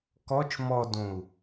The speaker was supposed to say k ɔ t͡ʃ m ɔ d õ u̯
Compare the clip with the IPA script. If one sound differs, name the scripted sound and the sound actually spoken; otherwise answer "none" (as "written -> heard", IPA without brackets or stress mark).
none